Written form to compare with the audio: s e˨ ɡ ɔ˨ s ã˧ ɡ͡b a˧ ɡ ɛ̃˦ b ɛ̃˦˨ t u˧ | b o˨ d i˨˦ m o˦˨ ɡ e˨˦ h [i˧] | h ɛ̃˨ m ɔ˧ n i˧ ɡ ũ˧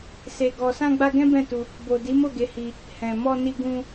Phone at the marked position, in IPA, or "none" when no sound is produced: i˧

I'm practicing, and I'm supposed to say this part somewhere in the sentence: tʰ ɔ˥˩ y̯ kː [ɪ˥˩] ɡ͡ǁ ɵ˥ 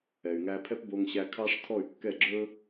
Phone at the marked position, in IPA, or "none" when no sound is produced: ɛ˥˩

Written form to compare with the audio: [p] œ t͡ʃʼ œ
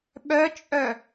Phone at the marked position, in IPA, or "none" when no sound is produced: ɓ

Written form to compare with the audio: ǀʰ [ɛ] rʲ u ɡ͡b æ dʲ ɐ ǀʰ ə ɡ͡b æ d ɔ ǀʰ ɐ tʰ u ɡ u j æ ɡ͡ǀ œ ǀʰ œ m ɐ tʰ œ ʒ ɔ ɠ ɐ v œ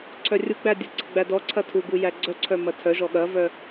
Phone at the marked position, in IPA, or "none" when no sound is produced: œ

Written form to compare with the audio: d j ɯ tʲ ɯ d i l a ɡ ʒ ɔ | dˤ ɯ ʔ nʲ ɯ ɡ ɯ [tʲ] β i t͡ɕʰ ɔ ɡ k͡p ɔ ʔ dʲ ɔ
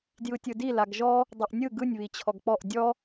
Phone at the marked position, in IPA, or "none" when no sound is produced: nʲ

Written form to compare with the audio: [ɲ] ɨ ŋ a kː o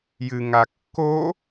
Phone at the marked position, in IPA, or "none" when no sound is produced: j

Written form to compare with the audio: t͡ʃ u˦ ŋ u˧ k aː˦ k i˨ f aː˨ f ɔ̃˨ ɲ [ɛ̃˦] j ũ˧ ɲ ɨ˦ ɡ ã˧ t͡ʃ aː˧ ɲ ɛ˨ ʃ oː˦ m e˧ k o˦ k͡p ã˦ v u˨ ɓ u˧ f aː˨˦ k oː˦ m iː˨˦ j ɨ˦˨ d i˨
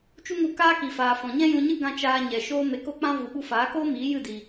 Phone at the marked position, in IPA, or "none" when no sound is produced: ɛ̃˦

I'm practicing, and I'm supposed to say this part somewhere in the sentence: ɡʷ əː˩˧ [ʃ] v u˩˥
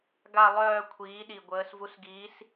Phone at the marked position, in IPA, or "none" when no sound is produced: s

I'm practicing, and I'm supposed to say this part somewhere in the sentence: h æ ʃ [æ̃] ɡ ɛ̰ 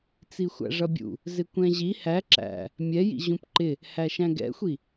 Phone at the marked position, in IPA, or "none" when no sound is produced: æ̃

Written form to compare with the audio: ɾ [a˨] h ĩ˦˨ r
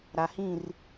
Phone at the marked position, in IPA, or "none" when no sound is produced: a˨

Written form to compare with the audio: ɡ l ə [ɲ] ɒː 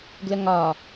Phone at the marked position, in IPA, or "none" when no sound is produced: ŋ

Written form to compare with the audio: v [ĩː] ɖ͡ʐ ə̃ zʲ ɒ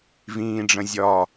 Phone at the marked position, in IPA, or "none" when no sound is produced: ĩː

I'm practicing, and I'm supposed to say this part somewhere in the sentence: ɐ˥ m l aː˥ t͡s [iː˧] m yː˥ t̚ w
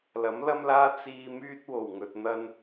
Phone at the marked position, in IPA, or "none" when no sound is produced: iː˧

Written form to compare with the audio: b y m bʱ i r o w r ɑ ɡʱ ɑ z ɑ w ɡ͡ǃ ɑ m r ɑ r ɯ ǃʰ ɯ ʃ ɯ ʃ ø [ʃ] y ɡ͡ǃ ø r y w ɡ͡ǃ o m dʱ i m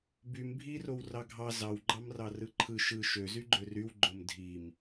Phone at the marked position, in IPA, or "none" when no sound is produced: z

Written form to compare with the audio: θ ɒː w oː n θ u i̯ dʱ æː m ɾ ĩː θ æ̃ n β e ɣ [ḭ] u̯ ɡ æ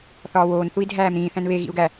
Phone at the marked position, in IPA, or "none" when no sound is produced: ḭ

